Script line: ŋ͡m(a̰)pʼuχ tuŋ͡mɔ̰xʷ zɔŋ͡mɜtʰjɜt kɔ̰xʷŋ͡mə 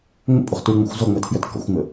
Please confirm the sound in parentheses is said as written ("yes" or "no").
no